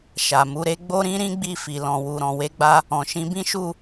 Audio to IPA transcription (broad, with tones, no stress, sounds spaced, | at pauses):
ʃ a˨ m u˨˦ ɾ e˦ ɡ͡b o˦ ɾ ĩ˦ ɾ ĩ˦ ɡ͡b i˦˨ f i˨ l ɔ̃˨ w u˨ ɾ ɔ̃˨ w e˧ ɡ͡b a˧ | ɔ̃˨ ʃ ĩ˧ b ĩ˦ ʃ u˦˨